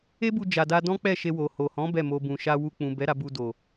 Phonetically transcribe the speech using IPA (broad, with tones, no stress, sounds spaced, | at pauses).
e˦ b u˧ d͡ʒ a˨ d a˧ d ɔ̃˦ k͡p ɛ˦˨ ʃ e˧ w o˨ h o˨ h ɔ̃˨˦ b ɛ˦˨ m o˧ b ũ˨ ʃ a˧ w u˧ k͡p ũ˨ b ɛ˨˦ ɾ a˧ b u˧ d o˨